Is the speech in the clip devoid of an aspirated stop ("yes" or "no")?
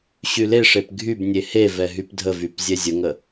yes